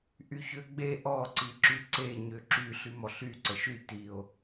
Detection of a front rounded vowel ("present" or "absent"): present